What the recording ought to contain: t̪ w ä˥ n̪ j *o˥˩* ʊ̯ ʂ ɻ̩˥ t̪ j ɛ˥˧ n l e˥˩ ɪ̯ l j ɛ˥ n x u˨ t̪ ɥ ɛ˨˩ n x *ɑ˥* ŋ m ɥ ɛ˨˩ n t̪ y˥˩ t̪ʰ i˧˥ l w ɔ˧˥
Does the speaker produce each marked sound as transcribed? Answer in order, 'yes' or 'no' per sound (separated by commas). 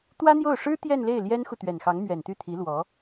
yes, no